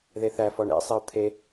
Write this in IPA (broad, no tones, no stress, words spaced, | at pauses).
ðeθæfɔɳ ḛsˤeʊ̯ t̪ʰe